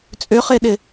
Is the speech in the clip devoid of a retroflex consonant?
yes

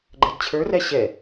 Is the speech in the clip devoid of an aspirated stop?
no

